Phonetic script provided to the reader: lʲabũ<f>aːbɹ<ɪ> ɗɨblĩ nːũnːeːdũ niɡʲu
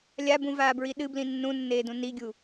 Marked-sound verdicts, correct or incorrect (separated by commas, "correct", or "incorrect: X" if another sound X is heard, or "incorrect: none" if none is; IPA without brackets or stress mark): incorrect: v, incorrect: i